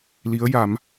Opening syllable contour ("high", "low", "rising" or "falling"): rising